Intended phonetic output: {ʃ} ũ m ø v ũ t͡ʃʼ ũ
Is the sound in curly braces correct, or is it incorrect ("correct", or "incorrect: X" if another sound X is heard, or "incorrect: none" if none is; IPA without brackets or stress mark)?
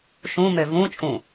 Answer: correct